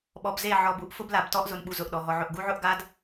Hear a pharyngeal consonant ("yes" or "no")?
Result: yes